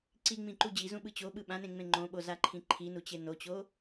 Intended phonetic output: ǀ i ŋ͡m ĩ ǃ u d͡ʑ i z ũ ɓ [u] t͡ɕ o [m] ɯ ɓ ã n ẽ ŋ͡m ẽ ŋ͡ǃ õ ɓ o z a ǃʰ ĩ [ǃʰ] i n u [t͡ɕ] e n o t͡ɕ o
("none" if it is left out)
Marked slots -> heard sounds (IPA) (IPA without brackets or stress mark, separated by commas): ɯ, ɓ, ǃʰ, t͡ɕ